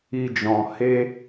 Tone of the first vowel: high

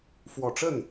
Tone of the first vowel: low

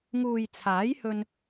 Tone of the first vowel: low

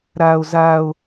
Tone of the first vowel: high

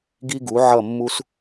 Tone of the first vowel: high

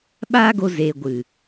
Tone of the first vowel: high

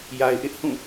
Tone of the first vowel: low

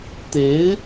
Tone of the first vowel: rising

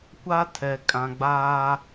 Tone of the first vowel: high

